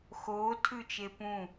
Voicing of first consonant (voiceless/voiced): voiceless